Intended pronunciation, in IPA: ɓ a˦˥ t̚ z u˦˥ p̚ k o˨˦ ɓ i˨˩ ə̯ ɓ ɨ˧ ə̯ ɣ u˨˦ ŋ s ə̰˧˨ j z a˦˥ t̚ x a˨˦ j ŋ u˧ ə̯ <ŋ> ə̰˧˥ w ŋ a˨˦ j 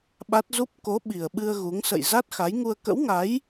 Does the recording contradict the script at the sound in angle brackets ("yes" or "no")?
yes